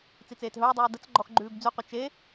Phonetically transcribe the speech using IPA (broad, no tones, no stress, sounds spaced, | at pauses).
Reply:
t͡s i t͡s eː t ɦ ɵː dˤ ʉː d ə t͡s ɡ͡ǃ ɔ x ɡ͡ǃ ʉː b d͡z ʉ qʷ ʌ t͡ʃ e